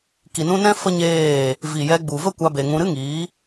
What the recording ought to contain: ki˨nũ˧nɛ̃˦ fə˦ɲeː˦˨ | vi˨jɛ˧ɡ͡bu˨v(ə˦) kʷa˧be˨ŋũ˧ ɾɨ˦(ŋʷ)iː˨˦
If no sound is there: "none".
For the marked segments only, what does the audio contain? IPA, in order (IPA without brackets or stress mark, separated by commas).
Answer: ə˦, ŋ